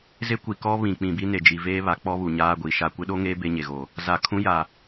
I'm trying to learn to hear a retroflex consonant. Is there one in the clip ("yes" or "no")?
no